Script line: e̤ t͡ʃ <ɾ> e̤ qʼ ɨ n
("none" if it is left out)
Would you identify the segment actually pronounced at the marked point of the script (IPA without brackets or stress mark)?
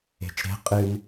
ɾ